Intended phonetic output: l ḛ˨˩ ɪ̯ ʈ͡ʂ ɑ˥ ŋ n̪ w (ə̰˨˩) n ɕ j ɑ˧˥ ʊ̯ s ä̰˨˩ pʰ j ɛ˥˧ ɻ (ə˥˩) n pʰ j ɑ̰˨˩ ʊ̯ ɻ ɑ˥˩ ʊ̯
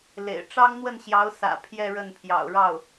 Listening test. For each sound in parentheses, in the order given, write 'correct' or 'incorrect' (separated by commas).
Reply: incorrect, correct